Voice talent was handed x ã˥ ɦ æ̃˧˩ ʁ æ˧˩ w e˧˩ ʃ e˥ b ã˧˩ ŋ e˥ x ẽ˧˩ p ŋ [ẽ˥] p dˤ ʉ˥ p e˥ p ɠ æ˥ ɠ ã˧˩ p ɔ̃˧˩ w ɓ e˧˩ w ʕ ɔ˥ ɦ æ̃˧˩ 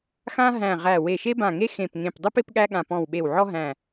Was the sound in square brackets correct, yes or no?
no